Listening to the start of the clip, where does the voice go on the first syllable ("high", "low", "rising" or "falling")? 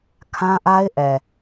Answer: high